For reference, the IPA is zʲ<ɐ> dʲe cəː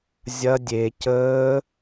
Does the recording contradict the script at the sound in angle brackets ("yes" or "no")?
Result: no